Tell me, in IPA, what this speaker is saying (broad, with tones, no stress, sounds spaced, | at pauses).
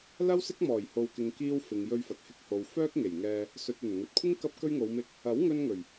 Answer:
l ɐ˥ w s ɪ˥ k̚ m ɔː˨˩ j h o˨ w k ɪ˨ ŋ k iː˧ w f ɪ˨ ŋ j ɵ˧ ɥ f ɐ˨ t̚ h ɪ˧ k̚ h o˨ w f œː˥ k̚ ŋ e˨˩ j ŋ ɛː˧ | s ɵ˨ t̚ ɵ˨˩ n ŋ ɵ˨ t̚ kʷʰ ɪ˥ ŋ k ɐ˥ p̚ k ɵ˧ ɥ ŋ o˨˧ w m ɪ˧ k̚ | ɐ˨˥ w ŋ ɵ˧ n ŋ ɵ˨˩ ɥ